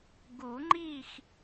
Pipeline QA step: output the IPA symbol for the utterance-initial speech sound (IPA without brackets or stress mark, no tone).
ɡ